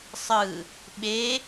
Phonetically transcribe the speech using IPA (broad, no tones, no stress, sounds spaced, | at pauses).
sˤ ɯ | ɓ e